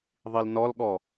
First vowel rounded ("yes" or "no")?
no